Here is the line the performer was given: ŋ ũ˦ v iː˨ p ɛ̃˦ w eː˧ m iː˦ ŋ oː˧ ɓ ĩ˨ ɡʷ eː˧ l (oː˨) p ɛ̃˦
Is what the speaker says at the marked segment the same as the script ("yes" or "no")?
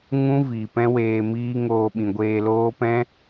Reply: no